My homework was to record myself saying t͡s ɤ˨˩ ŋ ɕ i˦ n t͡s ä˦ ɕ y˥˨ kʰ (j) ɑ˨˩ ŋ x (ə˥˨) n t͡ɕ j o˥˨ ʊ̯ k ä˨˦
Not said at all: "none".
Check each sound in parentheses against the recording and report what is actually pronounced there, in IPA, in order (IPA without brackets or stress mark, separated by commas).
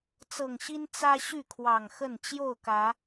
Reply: w, ə˥˨